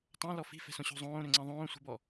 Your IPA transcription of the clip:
tˤ ã l ɔ f i̤ f ɛ̤ s õ ɕ o̤ zˤ õː ɾ ø ŋ͡ǀ ɛ̃ ðˤ õː sʷ i̤ b ɔ

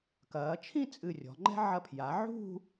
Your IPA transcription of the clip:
k ɐː˩˧ t͡ʃʰ ĩ˥˧ t͡sʼ ɨ˧˩ rʲ ɔ̤˩˧ ŋ͡ǃ ɛ̤˥ ʕ ɐ˧˩ pʰ j a˩˧ ʕ ṳ˥˧

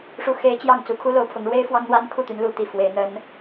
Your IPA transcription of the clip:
ʂ u˧˥ x e˧˥ ɪ̯ t͡ɕ j ɑ˥˩ ŋ t͡s u˨˩ kʰ u˥ l o˧˥ ʊ̯ pʰ ʊ˧˥ ŋ ɻ w e˥ ɪ̯ f w ɑ˥ ŋ n̪ w a˥ n kʰ u˥˩ t̪ y˧˥ n l u˧˥ t̪ i˨˩ f w e˧˥ ɪ̯ n̪ ə˥ n

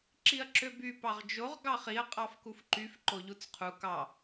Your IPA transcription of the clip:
ǁ i ɐ̯ ǁ ø b y p ɑ ʁ d͡ʒ o ʁ ɡ ɑ χ i ɐ̯ qʼ ɑ f k u f ǃ y f ǃ o ʎ u t͡s qʰ u k ɑ

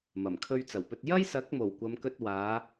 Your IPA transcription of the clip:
m ɐ˨˩ m kʰ ɵ˧ ɥ t͡s ɐ˨˩ w p ɵ˧ t̚ j ɐ˥ j s ɐ˨˥ k̚ m o˨˩ w kʷ ɐ˨˧ m k ɵ˧ t̚ w aː˨˧

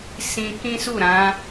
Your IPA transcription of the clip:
s ĩ˧ k ĩ˦ s u˦˨ ɾ ã˨˦

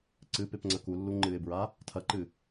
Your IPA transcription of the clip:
ǀ ɨ p e p ŋ͡ǀ ɐ k u lː u ŋ͡ǃ ɨ ɪ̯ b ɹ a | tʰ ɐ ǃ ɨ

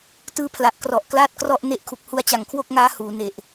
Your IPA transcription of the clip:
t ɯː˧ pʰ l a˨˩ ʔ k r ɔ˨˩ ʔ k l aː˥˩ t̚ k r ɔ˥˩ ʔ n e˦˥ ʔ kʰ u˨˩ k̚ h u˧ a̯ t͡ɕ a˨˩ ŋ kʰ w o˥˩ k̚ ŋ aː˦˥ h uː˩˦ n e˨˩ ʔ

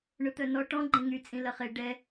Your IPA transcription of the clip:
ɳ ʊ t̪ œ n ɔ ʈ ɔ̃ ɡ͡ǃ ẽ ŋ y t͡sʼ ĩ l ɐ χ e ɖ ɛ

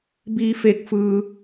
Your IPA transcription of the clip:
b iː˧ f e˧ k̚ f ɯː˧

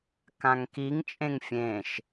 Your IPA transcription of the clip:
k ã ŋ k i ŋ t͡ʃʼ ẽ ŋ fʲ ẽ ʃ

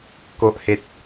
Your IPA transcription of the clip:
k o˨ ʔ h e˨ t̚

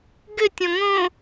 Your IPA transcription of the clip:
ɡ ɘ tʲ ɔ̃ ŋ õ

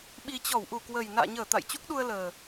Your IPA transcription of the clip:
ɓ i˨˩ t͡ɕ ɔ˧˩ w ʔ u˧˩ k w ə˨˩ j n a̰ː˧˨ ɲ əː˧˩ t̪ a̰˧˨ j t͡ɕ u˦˥ k̚ ɗ u˧ ə̯ l əː˨˩

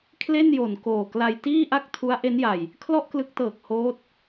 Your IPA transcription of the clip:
kʰ l e˥˩ n j o˨˩ n k oː˨˩ k l a˧ j t iː˥˩ ʔ a˥˩ k̚ tʰ u˦˥ a̯ ʔ e˦˥ n j a˨˩ j | kʰ l ɔ˥˩ ʔ k l ɯ˦˥ k̚ t ɤː˨˩ k̚ h oː˦˥ t̚

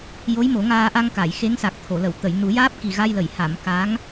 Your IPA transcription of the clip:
j o˧˥ j m o˨˩˦ ŋ aː˧ ʔ a˧ ŋ k a˨˩˨ j x e˧˥ ŋ s a˨˩ k̚ t̪ʰ o˨˩˨ l ə˨˩˨ w t̪ ə˨˩˨ j n u˨˩˦ j aː˦˥ p̚ k i˨˩ ɣ a˧ j l ə˨˩˨ j h a˨˩˨ m k a˧˥ ŋ

